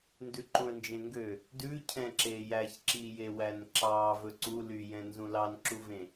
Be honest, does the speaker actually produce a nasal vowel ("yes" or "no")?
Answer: yes